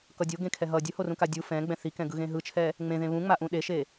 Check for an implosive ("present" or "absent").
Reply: present